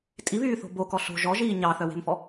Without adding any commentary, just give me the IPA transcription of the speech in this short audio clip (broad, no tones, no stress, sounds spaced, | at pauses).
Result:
tʼ i β yː θ o̤ b o k ɔ ɬ o̤ ʒ ɔ ʒ iː ɲ ɑ θ œ w e̤ m f ɔ